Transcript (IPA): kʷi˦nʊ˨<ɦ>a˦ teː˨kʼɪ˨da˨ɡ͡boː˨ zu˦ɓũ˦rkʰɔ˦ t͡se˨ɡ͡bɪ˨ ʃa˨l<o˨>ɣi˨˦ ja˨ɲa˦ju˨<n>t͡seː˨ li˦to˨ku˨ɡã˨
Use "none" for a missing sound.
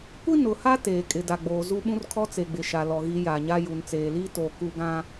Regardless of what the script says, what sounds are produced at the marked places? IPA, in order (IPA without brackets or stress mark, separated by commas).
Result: h, ɔ˨, n